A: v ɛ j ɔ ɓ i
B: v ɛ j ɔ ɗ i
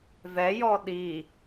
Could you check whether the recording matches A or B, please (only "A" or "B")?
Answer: B